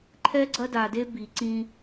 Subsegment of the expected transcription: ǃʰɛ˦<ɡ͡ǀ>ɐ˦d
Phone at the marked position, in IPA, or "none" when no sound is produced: ɡ͡ǀ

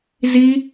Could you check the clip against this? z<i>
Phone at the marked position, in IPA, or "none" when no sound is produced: i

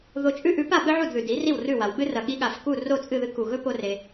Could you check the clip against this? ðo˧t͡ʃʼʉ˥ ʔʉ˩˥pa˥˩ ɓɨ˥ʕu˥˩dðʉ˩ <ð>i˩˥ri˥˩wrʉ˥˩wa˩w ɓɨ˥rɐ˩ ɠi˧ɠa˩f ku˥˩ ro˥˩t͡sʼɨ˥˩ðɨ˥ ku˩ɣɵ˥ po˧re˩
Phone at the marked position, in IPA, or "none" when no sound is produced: d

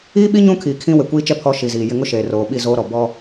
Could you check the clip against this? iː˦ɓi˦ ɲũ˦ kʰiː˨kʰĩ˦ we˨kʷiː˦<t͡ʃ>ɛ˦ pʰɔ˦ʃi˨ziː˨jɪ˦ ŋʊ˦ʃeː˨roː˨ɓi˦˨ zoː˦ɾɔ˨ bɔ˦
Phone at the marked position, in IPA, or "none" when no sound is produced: t͡ʃ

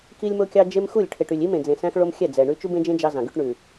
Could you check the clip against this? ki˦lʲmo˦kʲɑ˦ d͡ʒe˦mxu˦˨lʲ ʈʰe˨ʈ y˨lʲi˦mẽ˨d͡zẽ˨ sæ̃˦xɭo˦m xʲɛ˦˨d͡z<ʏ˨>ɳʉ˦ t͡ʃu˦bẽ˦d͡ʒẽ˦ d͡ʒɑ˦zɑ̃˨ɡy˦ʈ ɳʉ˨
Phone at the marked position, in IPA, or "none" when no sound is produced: ɛ˨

